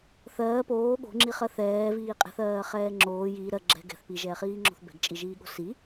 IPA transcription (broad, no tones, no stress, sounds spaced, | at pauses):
θ ɜː p oː ɠ o̤ ŋ͡ǁ i χ ɜ θ ɛː v iː qʼ ɛ̤ θ ɜː χ ɛː ŋ͡ǁ oː j iː ɾ ɜ ɡ͡ǁ ɛ̤ ɡ ɛ̤ θ p i ʒ ɛː χ iː ŋ͡ǁ o̤ θ b ɛ̤ ɡ t͡ʃʼ i ʒ iː ɠ o̤ s i